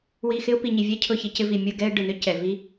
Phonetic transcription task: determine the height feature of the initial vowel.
high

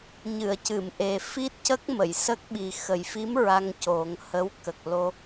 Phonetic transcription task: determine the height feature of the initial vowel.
high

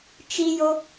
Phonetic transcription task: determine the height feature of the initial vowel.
high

